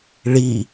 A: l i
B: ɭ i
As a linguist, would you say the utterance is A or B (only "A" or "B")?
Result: B